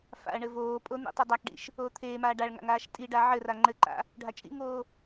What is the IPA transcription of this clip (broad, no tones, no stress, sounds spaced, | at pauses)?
f a̰ ɐ̯ ɳ ɘ v oː pʼ o n̪ ḭ tˤ u dˤ a k ɖ ḭ ʃ | oː t̪ʰ eː m aː ɖ a ɭ ŋ a̰ ŋ aː ʃ tʼ i ɖ a ʕ ɘ r a ŋ͡ǃ ɘ ǃ a̰ | ɖʱ a t͡ʃʼ ḭ ŋ oː